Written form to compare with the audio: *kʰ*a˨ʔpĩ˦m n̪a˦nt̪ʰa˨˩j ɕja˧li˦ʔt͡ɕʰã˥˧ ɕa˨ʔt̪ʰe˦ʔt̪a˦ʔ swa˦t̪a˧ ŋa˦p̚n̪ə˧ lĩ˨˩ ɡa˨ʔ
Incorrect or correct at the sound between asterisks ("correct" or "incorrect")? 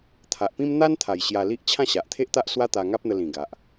incorrect